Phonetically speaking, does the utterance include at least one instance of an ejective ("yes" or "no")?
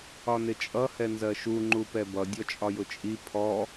yes